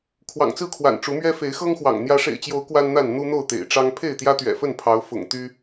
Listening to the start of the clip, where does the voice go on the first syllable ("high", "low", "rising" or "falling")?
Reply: low